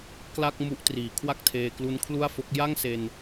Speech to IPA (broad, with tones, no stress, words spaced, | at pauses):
kla˥˩k̚ mu˦˥ʔtriː˩˦ kʰwa˥˩k̚tʰeː˧ klu˦˥nkʰlu˥˩a̯fo˦˥k̚ ja˥˩ŋse˧n